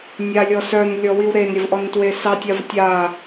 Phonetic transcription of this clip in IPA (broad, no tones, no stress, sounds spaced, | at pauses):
nʲ a lʲ ɔ s œ n lʲ ɔ w i w ɾ e n ɾʲ ə v ʔ ɔ n t w e s ɑ tʲ a v tʲ a